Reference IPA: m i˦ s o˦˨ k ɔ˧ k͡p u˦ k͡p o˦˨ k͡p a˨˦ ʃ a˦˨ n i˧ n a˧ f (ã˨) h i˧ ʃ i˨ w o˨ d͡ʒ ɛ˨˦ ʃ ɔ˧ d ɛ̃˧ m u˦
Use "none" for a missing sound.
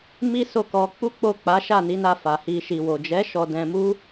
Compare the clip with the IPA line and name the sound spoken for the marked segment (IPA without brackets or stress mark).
a˨